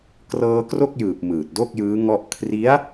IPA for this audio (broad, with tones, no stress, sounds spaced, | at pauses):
k r ɤː˧ k r o˥˩ k̚ j ɯː˨˩ p̚ m ɯː˨˩ t̚ d o˥˩ k̚ j ɯː˦˥ ŋ ɔ˥˩ ʔ kʰ r i˦˥ a̯